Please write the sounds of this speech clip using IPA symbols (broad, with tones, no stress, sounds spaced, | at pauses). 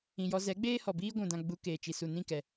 ĩ˨ j ɔ˧ z ɛ˨˦ ɡ͡b eː˦ h ɔ˨ b iː˦ ɡʷ ũ˨ d ã˧ ɡ͡b u˧ k eː˨ t͡ʃ i˨ s u˨ n ĩ˦˨ k ɛ˨